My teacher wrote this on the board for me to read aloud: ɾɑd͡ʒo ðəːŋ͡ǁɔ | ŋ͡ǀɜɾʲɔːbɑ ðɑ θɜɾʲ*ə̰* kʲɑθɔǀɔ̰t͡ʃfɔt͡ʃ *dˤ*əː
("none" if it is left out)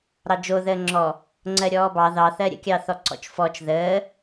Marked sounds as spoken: ə̰, ð

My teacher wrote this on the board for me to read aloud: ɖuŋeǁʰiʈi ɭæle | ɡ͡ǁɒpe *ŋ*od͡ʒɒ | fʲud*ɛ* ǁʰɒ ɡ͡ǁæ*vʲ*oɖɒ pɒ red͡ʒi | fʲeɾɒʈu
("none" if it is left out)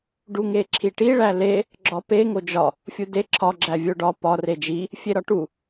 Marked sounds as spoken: ŋ, e, vʲ

